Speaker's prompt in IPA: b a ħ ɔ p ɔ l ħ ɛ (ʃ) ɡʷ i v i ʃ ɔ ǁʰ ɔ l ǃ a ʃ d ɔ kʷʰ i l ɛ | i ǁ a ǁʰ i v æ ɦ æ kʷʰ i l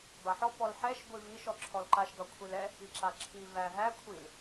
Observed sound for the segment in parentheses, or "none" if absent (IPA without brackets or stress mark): ʃ